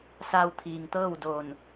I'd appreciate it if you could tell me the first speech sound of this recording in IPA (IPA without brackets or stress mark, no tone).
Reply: s